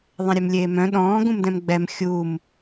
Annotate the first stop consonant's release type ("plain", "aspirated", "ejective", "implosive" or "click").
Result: implosive